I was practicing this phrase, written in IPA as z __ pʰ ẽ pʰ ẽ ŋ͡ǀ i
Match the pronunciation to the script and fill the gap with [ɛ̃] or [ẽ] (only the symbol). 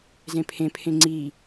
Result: ẽ